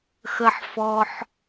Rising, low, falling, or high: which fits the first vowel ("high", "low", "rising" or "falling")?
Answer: low